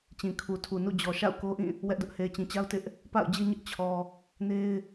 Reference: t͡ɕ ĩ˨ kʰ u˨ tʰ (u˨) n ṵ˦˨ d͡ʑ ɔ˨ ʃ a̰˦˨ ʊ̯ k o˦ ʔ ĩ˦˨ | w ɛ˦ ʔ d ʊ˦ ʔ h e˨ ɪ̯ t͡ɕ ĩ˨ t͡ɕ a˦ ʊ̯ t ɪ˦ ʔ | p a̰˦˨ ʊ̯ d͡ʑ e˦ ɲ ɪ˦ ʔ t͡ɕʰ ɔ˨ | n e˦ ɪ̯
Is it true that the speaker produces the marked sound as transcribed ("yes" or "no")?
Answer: yes